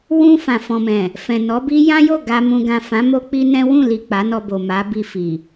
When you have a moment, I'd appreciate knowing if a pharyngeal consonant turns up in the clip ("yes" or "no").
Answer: no